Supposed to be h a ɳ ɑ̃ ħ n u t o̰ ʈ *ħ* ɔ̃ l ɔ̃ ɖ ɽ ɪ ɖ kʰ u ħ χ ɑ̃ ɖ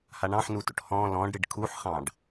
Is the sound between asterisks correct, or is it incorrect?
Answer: incorrect